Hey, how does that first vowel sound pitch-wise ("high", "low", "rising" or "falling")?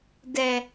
low